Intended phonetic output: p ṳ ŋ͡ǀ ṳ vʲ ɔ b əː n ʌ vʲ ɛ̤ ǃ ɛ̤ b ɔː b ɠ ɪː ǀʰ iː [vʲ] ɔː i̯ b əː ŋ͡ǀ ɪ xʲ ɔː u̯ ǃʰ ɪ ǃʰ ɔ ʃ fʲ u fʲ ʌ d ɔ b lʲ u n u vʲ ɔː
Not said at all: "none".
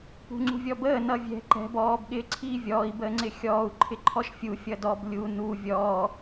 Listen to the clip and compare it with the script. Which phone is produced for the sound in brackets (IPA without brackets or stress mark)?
vʲ